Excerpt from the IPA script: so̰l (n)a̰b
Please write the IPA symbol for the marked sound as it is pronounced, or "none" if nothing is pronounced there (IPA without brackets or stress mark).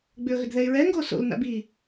n